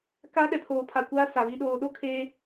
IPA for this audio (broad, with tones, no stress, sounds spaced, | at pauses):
k a˦ ɗ ɛ˨ pʰ oː˨ pʰ a˨ kʷ aː˦ s a˨ β i˨ ɗ oː˨ ɗ o˦ kʰ e˦